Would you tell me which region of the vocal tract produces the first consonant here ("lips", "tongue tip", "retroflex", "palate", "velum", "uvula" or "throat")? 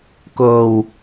velum